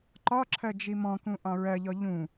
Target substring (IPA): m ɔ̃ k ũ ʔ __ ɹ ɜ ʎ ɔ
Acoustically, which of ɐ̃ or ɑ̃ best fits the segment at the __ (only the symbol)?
ɑ̃